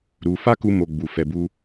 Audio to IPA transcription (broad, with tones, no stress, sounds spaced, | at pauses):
ɾ u˧ f a˦ k u˧ m o˧ ɡ͡b u˨ f ɛ˨ b u˧